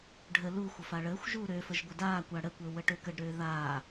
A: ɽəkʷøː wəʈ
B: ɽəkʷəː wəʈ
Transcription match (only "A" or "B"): B